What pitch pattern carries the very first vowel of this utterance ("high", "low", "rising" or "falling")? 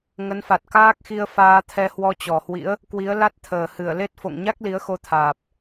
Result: rising